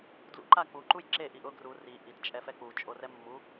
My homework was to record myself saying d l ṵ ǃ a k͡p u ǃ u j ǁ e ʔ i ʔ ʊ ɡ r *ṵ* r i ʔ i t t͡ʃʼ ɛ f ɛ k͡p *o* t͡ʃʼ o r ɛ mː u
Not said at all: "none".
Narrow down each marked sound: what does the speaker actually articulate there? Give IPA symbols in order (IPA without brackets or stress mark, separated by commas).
u, u